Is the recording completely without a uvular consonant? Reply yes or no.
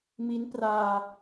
yes